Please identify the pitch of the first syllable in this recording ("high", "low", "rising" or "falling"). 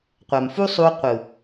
low